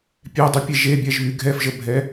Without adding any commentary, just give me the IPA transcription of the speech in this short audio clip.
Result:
pʲ ɛ dˤ y pʲ e ʒ e bʲ ɛ ʒ β y ɡʱ ɛ f ʒ ə bʱ ɛ

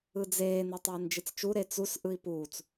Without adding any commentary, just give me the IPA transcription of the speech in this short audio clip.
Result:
ɯ d͡z eː n e tˤ ɛː n d͡ʒ i t͡s t͡ʃ u ɾ e t͡s u s ʔ ɯ i̯ p uː t͡s

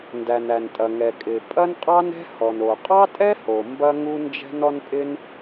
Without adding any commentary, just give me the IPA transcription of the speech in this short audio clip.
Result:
n d æ˩ n æ˩ n tʼ ɐ˩ ŋ ɛ˩ kʼ ɪː˩ pʼ ɐ˥ n qʼ ɑ˥ n ɛ̤˥ h ɔ˩ n o˩ qʼ ɑ˥ tʼ ɛ˥ h o˩ m b ɐ˥ ŋ u˥ n d͡ʒ ɛ̤˥ n ɔ˥ n pʼ ɪ˥ n

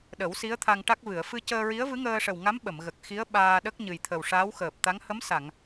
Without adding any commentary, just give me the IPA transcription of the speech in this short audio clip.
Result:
ɗ ə˨˩˦ w s i˧˥ ə̯ t̪ʰ a˧ ŋ ʈ a˦˥ k̚ v ɨ˨˩˨ ə̯ f ɨ˧ c əː˧ ɹ i˧˥ ə̯ v ɨ˧˥ ŋ əː˧ ʂ ə˨˩ w ŋ a˧˥ m ɓ ə˨˩˨ m ɣ ə˨˩ k̚ x i˧˥ ə̯ ɓ aː˧ ɗ ə˦˥ k̚ ɲ ɨ˨˩ j t̪ʰ ə˨˩ w ʂ a˧˥ w x əː˨˩ p̚ t̪ a˧˥ ŋ h ə˧˥ m s a˨˩˨ ŋ

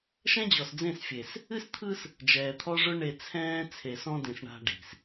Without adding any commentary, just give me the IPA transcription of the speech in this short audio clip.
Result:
ʃ ɛ̃˦ d͡ʑ ɔ˨ s d͡z ẽ˦˨ s fʲ e˨ s | ɨ˦ s t̪ʰ ɯ˦ s | d͡ʒ ɛː˨ t̪ʰ ɔ˦ ʐ ʊ˦ ɳ e˨ t͡sʰ ɛ̃ː˦ t͡sʰ e˨ s ɔ̃˦ d ẽ˨ s ɳ a̤˦ ɖ i̤˨ s

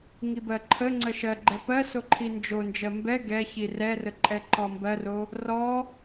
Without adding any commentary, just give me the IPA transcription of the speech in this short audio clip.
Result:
ŋ i b ɜ ǃʰ ə ŋ͡ǀ ə ʃ ɜ ɡ͡ǃ ɛ p ɜ s o ǃʰ i n d͡ʒ o n d͡ʒ ɜ m b ɛ ɡ ɛ ç i r ɛ r ə ǃʼ ɛ ǃ ɔ m b ɜ r o | r ɔ

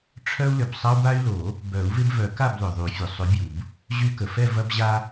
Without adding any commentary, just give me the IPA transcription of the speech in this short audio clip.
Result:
ʈ͡ʂʰ œ˦ u̯ l ʏ˩ b sˤ ɐ˦ u̯ b a˦ y̯ l o˨˩˦ | b œ˨˩˦ u̯ v ɪ˦ b v œ˨˩˦ k a˥˨ b l ʏ˩ ðˤ y˨˩˦ fʲ ʊ˩ sˤ ʏ˨˩˦ bʲ u˩ b | ʑ y˦ k ə˩ f ɛ˥˨ v ɐ˦ b ʑ a˦

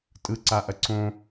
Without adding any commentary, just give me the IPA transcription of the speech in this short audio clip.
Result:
tʼ ɯ ǀ a ʔ ɐ ǀ õ

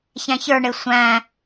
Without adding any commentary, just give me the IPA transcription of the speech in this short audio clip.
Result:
ç æ̃ ç ə˞ ɳ ɪ sʷ æ̃

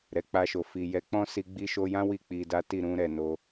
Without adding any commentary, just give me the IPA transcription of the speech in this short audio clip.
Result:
ɾ ɛ˨ k͡p a˧ ʃ o˨ f i˨ j ɛ˨˦ k͡p ɔ̃˦ s i˧ ɡ͡b i˧ ʃ o˧ j ã˦ w i˦˨ k͡p i˧ d a˦ t i˦˨ ɾ ũ˧ ɾ ɛ˨ n o˧

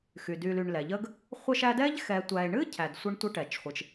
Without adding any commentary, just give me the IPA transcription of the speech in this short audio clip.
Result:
x y˩ d y˨ l y˨ ɳ l ɛ˩ ʎ ə˦ ɡ | χʷ ə˦ ʃ æ˦ d ɛ˥ ʎ x ɛ˨ tʷ æ˨ e̯ ɳ ɨ˥ cʰ æ˨ d sʷ ɘ˦ ɳ tʷ ə˦ ʈ ɛ˩ t͡ʃ χʷ ɨ˩ t͡ʃ

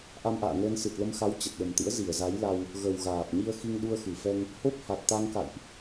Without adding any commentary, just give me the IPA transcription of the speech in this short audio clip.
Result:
ʔ a˧ m ʔ a̰ː˧˨ ŋ əː˧ n s ɨ˨˩ t̚ l ə˧ m x a˨˦ w t͡ɕ ə˨˩ t̚ ɗ ə˨˩ m t̪ ɨ̰˧˥ ə̯ z i˧˩ ə̯ z a˨˦ j l a˧ w | ɣ ə˨˩ w ɣ aː˨˩ p̚ ɲ i˧ ə̯ x i˧ ŋ ɗ u˧ ə̯ x ɨ˧˩ f ɛ˧ ŋ | h o˦˥ p̚ h a˨˩ t̚ t̪ a˧ ŋ k a̰˧˨ j ʔ

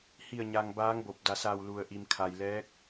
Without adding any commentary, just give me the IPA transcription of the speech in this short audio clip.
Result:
h i˧˩ ə̯ ɲ a˩ ŋ b aː˧˥ ŋ b o˧˩ p̚ d a˩ s a˧˩ w l u˩ ə̯ ʔ i˩ m kʰ a˩ j l ɛː˧˥ k̚

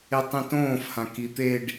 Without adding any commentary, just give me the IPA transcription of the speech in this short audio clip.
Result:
e tˤ ĩ t õː f h ã k i t̪ e ɖ

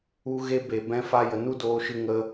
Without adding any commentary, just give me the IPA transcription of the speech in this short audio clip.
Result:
u˧ ɣ e˧ b e˨ b ɛ̃˧ f a˧ j ə˨ n u˦ d oː˧ ʃ ɨ˧ ŋ ə˦

